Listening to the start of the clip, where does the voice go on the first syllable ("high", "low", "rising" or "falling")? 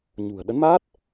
low